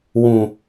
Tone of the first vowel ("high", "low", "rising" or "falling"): low